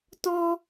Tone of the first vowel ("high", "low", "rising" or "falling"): high